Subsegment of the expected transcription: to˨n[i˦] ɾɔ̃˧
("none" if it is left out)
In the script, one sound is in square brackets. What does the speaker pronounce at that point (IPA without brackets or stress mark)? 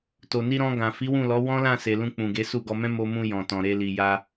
i˧